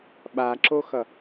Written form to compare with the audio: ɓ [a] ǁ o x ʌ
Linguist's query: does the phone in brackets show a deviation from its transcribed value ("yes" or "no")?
no